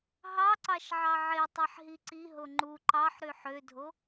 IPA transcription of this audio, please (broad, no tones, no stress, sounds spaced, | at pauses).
ɦ ɑ ǀ ɑ ʃ ʕ ɑ ʕ e tˤ e ħ ɦ i ǀ i ɦ o ŋ͡ǃ u ǃ ɑ ħ ɾ y ħ ø dʱ o